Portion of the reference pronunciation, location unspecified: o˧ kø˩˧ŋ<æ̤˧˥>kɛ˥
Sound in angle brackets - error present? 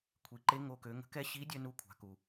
yes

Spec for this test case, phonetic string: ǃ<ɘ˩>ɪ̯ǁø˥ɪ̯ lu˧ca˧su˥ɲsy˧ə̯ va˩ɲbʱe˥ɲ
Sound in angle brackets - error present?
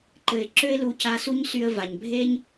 no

